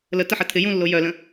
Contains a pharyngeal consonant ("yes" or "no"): yes